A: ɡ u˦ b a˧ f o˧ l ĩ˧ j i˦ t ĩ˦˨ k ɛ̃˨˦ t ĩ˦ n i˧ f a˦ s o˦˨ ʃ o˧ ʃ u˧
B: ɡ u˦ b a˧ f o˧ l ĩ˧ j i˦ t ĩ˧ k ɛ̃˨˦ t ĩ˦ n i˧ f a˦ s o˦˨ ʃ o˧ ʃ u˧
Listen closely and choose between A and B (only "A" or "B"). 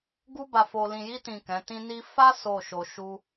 A